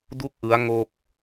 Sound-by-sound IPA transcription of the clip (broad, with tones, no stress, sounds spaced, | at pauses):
d u˥˩ k̚ ʔ ɯ˦˥ a̯ ŋ o˥˩ k̚